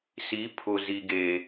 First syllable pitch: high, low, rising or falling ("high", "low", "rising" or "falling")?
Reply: rising